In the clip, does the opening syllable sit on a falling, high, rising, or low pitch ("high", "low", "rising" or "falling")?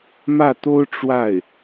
falling